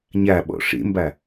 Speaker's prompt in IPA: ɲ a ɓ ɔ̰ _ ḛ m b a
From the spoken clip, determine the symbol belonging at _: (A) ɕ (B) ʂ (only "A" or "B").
B